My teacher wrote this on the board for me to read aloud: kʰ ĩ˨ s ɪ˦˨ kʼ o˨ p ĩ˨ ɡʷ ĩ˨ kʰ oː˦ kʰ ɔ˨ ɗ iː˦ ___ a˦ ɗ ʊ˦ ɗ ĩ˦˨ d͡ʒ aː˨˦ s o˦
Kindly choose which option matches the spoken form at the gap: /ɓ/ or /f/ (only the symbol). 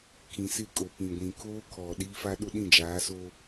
f